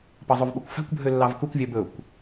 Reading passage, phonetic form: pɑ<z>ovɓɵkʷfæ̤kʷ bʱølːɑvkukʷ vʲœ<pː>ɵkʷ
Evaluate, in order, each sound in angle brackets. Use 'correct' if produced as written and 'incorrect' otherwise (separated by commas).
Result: incorrect, incorrect